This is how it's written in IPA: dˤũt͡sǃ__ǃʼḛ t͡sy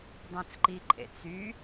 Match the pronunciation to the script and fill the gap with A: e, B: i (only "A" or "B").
B